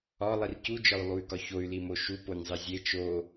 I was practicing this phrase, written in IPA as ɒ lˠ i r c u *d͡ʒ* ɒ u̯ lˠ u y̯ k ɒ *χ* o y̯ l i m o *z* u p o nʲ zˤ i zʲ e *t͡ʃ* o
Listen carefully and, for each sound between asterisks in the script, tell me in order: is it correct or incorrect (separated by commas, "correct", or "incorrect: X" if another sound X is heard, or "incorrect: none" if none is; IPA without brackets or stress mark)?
correct, incorrect: ç, incorrect: ʃ, correct